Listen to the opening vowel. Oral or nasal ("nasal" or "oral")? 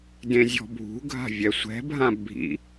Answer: nasal